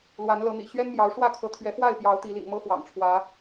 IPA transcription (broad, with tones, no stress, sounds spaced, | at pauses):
l w a˨˦ n l ɤ˨˦ n̪ ḭ˨˩ ɕ ɥ ɛ˦ n m j ɑ˨˦ ʊ̯ ʂ w ä˥˨ kʰ ɤ˨˦ t̪ʰ ɥ ɛ˨˦ f w a˥˨ ɪ̯ p j ɑ˨˦ ʊ̯ t̪ i˨˦ l ḭ˨˩ ŋ m ɤ˦ x w ɑ̰˨˩ ŋ ʈ͡ʂʰ w ä˨˦